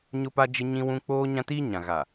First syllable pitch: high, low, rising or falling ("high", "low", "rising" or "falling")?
high